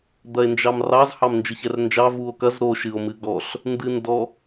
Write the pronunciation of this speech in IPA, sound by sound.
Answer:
d̪ ɐ e̯ n d͡ʒ ɑ m r ɑ z h ɑ m n d͡ʒ ɨ ç ɛ r n d͡ʒ ɑ v u o̯ k ɐ z ɾ o ʃ ɨ o̯ m ɨ ɡ ɔ ɬ | n d ɨ n d ɔ

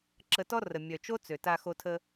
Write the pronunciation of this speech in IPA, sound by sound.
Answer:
ǁ ə˧ t ɔ˦ r ə˨ mʲ œ˨ t͡ʃ o˦ t͡s ø˨ t a˧ x o˧ tʰ ə˧

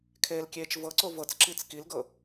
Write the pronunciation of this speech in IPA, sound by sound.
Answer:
kʰ eː l kʲ eː t͡ʃ v ɤ ǀ o v ɤ t͡s ǁ i t͡s k i l ɡ ɤ

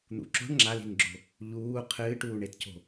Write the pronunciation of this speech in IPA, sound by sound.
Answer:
n̪ ṵ ǁ o̤ ɳ ŋ͡ǁ a l i̤ n ɡ͡ǁ o̤ | ʎ uː qʰ ɨː ʈ uː ɳ e t c o̤

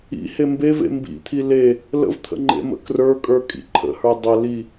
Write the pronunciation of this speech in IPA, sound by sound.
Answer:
ḭ h e m b e v ḛ m b ḭ t̪ʰ i l e | l ə̰ v t̪ʰ ə̰ ŋ͡ǃ ḛ m ə̰ k r ə˞ kʼ ə˞ kʼ ḭ ǃʰ ə̰ h ə˞ dˤ ə l i

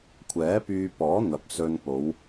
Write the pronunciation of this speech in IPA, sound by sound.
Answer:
kʷʰ ɛː˨˥ p yː˧ p ɔː˨˥ n̪ ɐ˨ p̚ s ɵ˧ n p o˨˧ w

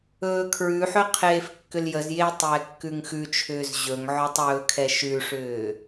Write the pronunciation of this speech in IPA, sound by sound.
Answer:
ɵː kʰ ɹ ʉ ħ ɵ qʰ eː f kː ʏ l j ə z j eː tˤ j ɛ kː ʉ ŋ x ʉ t͡ʃʰ ʏː z ʑ ɵ ŋ ʕ ɔ tˤ ɵː kʰ ɛ ʃ ʉ ʂ ʏː

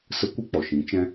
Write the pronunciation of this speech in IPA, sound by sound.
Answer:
s ə˦ kʷ ɨ˦ k͡p ɔ˨ ʃ ĩ˨˦ t͡ʃ ɛ̃˦

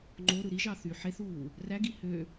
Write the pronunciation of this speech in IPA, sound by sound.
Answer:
ŋ͡ǃ o ɾ ɯ ɾ i ʒ ɑ θ y ħ e θ uː | r æ ɡ i h ø

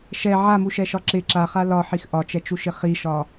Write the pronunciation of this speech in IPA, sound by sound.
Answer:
ʃ ɛ ʕ a m u ʃ ɛ ʃ ɒ ǁ ɪ ǁ a χ a l ɒ ħ i x ʔ ɒ t͡ʃ ɛ t͡ʃ u ʃ ɪ χ i ʃ ɒ

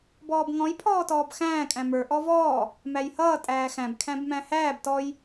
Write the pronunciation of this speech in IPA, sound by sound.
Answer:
b ɔː b ŋ ɔ̃ j pʰ ɔː t ɔː b x æ̃ː kʼ æ̃ m ə˞ ʔ ɔ v ɔː | m æ j h ʌː tʼ æː x æ̃ b kʰ æ̃ b m æ̃ h æː b t ɔ j

